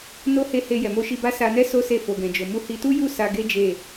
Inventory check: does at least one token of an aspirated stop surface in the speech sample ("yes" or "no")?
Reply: no